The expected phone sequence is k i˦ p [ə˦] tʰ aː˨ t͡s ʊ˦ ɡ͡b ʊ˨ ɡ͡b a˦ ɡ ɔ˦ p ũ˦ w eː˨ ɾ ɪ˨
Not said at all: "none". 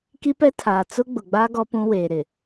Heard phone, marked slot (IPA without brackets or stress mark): ɛ˦